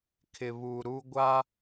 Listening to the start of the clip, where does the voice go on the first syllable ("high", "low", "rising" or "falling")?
low